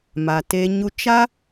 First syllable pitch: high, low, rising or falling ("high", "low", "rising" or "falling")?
low